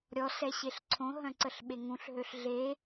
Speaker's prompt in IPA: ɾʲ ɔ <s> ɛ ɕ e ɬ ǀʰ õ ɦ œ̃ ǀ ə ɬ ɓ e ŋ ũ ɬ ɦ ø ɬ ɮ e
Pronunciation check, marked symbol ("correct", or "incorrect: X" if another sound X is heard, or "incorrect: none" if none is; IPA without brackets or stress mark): correct